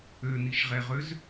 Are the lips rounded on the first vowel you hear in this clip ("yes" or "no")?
yes